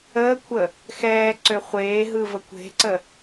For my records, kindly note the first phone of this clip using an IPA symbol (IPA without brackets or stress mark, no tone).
əː